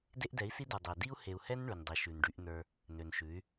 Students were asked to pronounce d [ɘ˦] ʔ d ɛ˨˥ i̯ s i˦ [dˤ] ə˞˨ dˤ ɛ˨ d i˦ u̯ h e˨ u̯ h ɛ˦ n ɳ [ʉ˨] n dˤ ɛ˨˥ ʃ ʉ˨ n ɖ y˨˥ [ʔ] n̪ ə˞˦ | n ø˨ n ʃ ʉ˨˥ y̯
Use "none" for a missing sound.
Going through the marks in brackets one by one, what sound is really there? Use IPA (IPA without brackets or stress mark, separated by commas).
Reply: e˦, d, ʉ˨, ʔ